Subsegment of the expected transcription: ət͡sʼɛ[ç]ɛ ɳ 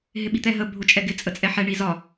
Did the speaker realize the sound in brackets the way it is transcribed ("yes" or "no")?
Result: no